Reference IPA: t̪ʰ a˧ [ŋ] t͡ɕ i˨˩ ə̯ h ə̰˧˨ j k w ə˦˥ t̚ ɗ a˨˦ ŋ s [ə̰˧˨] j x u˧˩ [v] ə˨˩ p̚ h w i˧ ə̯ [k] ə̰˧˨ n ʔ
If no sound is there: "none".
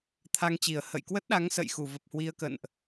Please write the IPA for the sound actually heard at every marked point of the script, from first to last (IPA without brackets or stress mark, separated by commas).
ŋ, ə̰˧˨, v, k